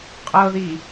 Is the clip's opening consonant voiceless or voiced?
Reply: voiceless